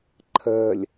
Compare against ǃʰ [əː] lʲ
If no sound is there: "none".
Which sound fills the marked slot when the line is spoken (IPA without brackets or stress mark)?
əː